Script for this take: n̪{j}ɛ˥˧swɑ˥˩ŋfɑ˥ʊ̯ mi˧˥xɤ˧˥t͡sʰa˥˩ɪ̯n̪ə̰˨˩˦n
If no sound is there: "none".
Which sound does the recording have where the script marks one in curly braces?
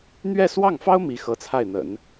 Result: ɥ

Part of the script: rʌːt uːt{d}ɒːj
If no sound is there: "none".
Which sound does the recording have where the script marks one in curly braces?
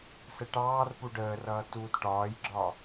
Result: ʈ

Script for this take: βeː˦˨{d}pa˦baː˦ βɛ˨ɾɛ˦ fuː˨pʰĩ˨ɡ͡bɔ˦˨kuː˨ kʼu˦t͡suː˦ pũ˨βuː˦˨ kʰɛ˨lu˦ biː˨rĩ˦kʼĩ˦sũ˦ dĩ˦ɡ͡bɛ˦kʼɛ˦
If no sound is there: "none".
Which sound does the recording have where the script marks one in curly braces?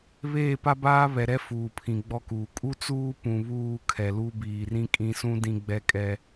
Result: none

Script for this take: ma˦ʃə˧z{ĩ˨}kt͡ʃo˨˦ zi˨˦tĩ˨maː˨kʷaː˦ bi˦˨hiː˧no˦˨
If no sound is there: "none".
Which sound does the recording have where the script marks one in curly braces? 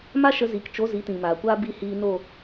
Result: i˨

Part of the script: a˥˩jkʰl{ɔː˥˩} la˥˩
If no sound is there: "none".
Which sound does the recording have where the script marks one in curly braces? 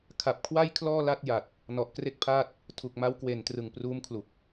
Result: ɔː˥˩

